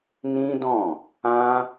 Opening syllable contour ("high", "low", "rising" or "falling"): high